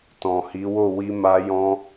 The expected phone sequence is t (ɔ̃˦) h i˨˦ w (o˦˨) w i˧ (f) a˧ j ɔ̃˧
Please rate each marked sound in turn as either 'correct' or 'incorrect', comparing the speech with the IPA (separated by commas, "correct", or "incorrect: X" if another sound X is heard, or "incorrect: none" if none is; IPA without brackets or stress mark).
incorrect: ɔ̃˨, correct, incorrect: m